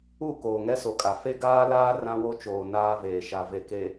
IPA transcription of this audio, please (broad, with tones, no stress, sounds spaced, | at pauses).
u˦˨ k oː˨ ŋ ɛ˦ s o˨ kʼ a˨ f e˦ ɡ aː˦ l aː˦ r ã˦ w o˦ t͡ʃ oː˨ n aː˦ v eː˨ ʃ a˨ v e˨ k e˨